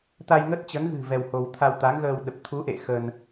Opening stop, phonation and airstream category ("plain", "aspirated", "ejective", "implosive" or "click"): plain